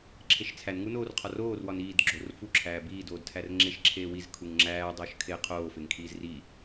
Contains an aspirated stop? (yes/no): yes